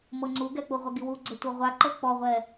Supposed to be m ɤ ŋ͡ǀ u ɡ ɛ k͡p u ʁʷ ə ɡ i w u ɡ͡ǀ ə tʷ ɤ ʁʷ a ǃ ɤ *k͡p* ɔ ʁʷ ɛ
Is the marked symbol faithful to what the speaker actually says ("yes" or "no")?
yes